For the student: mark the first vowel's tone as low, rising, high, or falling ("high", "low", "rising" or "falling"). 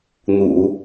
low